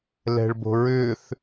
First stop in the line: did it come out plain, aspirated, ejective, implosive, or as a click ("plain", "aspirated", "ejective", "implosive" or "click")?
plain